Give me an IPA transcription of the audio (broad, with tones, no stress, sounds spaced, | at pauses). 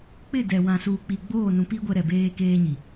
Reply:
k͡p ɪ˦˨ d ɛ˨ w ã˨ s uː˨ k͡p i˨ ɡ͡b oː˦˨ n ũ˨ p i˦ ɡʷ ɛ˦ ɾ ɛ˨ b eː˦ k eː˦ ɲ i˨